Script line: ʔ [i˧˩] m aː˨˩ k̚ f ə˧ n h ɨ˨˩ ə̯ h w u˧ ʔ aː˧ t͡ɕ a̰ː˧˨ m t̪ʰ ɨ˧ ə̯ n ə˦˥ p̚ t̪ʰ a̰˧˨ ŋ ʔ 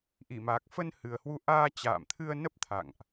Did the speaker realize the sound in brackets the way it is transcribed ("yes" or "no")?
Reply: yes